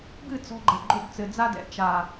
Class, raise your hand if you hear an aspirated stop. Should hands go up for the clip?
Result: no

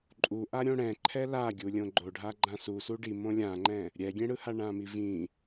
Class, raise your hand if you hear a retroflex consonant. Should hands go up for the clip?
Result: yes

